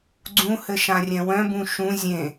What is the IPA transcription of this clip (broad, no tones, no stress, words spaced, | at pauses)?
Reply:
ɡ͡ǀũhɘ ʃãrʲɛ̃wœ̃bũ ʃũ zʲẽ